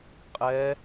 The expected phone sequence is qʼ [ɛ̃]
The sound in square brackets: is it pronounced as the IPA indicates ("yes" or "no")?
no